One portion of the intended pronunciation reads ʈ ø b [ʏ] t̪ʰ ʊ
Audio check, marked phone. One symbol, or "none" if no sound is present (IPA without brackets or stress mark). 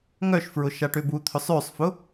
u